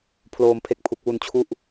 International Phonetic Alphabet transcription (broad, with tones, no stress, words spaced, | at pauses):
pʰloː˧mpʰe˦˥k̚pʰu˨˩k̚ wu˧nt͡ɕʰu˦˥ʔ